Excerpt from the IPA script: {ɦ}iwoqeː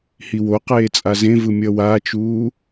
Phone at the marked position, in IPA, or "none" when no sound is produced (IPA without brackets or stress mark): h